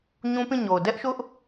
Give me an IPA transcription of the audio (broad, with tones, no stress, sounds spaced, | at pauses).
ɲ ũ˦ p ĩ˦˨ ɲ o˨ ʊ̯ d ɛ˦ ʔ ʃ ʊ˦ ʔ